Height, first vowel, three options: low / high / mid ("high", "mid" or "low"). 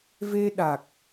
mid